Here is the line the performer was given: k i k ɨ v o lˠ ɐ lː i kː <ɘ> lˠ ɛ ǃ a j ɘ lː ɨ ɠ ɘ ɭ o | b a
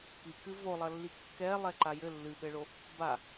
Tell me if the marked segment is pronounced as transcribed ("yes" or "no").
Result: no